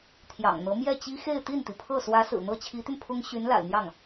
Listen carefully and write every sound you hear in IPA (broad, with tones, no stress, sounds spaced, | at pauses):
t̪ʰ j ɑ̰˨˩ ŋ n̪ ɤ˧˥ m j ɛ˥˩ t͡ɕ i˥ x e˥˧ ɪ̯ t̪ i˥˩ n t̪ i˩ pʰ ɤ˥˩ s w ä˧˥ s ɹ̩˨˩ n̪ ɤ˥ t͡ɕʰ i˧˥ t̪ y˧ n pʰ ʊ˥ ŋ ɕ y˧˥ n l a̰˨˩ ɪ̯ n̪ j ɑ˥˩ ŋ